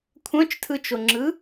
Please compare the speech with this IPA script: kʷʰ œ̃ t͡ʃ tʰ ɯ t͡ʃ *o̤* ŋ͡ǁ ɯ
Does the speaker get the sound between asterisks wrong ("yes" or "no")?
yes